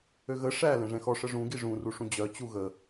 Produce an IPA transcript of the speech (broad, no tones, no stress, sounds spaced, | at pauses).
ø ɣ ə ʂ æ l ɛ̃ ʐ ɛ̃ x ɔ ʂ ə ʐ ũ ɡ i ʐ ũ r u ʂ ũ d͡ʑ œ t͡ɕ u ɣ ə